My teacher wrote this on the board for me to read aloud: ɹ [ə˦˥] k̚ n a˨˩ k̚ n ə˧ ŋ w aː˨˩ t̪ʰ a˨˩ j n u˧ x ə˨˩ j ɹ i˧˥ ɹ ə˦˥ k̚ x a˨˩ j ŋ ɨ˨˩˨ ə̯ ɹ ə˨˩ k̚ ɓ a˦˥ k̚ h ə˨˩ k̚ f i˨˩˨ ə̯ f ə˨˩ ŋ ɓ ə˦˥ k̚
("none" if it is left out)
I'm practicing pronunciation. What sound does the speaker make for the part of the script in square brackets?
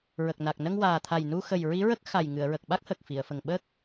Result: ə˨˩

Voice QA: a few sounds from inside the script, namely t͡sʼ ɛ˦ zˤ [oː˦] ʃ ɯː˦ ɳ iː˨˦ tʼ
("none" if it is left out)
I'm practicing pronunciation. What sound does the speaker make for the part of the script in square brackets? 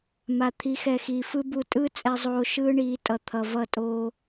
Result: oː˦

